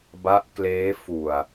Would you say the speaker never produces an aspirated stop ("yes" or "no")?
yes